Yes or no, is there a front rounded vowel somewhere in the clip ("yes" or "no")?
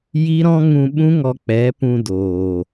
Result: no